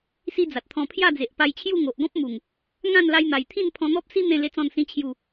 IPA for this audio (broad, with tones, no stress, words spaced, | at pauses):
si˦d͡za˨t̚t̪ʰɔ̃˧ pʰja˥˧d͡ze˨ʔpa˧jt͡ɕʰju˥˧ ŋo˨ʔ ɡɔ̃˦p̚mu˨˩ŋ | ŋã˥˧nla˧jn̪a˨˩jt̪ʰĩ˥˧n pʰɔ̃˧n̪ɔ˦p̚si˦ n̪ẽ˥˧ le˦t͡sɔ̃˥˧nsĩ˦ t͡ɕʰju˥˧